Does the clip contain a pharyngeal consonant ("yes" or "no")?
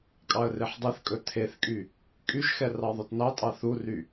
yes